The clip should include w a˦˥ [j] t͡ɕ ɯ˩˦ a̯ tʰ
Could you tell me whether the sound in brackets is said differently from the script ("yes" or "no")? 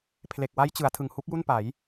no